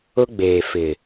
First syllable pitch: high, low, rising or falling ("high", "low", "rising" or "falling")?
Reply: high